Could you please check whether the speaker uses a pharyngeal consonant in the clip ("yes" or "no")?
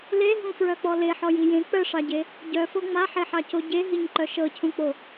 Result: yes